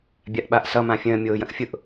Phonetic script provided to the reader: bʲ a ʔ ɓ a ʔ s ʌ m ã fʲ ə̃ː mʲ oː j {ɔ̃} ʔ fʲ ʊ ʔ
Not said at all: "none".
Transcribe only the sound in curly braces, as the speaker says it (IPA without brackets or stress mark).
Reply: ə̃